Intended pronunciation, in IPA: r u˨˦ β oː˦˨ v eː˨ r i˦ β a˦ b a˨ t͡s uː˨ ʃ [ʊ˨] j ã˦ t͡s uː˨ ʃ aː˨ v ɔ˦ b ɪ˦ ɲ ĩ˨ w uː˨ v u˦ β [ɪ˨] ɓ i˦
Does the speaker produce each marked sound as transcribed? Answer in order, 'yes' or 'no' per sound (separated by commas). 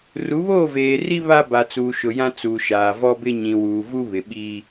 yes, yes